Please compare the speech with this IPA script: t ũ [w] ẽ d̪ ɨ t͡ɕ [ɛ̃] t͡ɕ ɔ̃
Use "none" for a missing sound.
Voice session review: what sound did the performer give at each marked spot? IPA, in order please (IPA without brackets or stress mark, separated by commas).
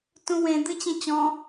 w, ẽ